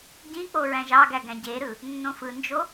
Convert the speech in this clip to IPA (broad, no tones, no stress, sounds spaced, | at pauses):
ɟ ĩ k͡p o ɹ æ̃ ʒ ɑ ɡ æ ɡ æ̃ ɟ e ɾ ɯ | nː õ f ɯ n d͡ʒ o